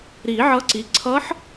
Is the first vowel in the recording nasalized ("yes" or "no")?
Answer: no